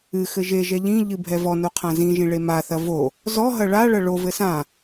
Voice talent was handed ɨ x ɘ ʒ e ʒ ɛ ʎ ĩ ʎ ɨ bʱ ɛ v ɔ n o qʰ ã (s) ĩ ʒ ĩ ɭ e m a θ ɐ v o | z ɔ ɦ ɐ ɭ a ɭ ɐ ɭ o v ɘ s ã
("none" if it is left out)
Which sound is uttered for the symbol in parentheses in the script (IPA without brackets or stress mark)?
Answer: z